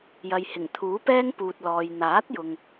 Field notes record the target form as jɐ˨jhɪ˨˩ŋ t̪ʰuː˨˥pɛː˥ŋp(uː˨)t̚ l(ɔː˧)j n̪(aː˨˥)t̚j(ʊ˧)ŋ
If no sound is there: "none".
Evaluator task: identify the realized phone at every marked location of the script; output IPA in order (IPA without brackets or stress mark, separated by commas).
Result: uː˨, ɔː˨, aː˨˥, ʊ˨